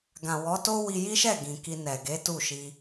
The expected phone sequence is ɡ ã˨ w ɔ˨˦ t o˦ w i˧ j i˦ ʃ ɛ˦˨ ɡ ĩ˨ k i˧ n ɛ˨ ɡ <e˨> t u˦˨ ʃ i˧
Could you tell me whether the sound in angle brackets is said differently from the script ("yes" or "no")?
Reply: yes